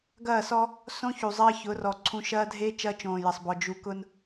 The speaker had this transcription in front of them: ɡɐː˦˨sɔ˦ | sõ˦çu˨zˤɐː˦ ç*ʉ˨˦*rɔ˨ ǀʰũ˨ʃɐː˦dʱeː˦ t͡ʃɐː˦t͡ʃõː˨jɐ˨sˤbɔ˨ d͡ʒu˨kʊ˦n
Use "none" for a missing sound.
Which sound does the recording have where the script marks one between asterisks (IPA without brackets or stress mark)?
ʊ˨˦